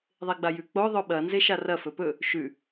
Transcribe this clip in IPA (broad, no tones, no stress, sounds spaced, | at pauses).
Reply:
ðˤ e ɡ͡b a j ʉ k͡p o ðˤ ɵ ɓ ɐ n z e ʃ a r ɐ f ɵ p ɵ | ʃ ʉ